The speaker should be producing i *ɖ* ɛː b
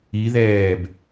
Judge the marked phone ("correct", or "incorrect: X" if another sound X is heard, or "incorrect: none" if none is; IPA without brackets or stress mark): incorrect: ð